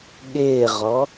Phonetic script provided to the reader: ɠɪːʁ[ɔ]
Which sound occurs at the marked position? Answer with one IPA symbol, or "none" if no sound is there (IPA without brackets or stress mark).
ɔ